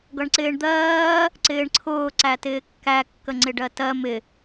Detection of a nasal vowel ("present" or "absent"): absent